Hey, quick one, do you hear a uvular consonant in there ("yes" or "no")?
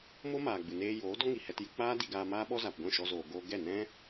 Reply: no